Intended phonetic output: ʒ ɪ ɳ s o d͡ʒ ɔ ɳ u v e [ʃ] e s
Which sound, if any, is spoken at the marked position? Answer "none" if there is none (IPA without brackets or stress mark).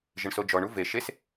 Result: ʃ